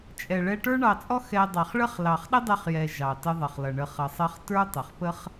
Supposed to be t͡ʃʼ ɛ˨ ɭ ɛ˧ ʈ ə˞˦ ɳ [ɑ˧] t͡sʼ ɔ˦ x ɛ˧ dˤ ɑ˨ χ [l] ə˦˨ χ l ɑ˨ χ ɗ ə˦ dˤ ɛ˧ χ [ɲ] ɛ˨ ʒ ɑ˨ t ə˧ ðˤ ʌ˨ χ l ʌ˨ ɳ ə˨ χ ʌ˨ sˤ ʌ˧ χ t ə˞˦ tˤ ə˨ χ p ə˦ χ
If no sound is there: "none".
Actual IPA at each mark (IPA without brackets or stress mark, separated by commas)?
ɑ˧, ɭ, j